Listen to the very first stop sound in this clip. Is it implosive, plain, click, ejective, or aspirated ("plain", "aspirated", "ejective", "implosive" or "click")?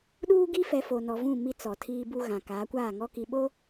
implosive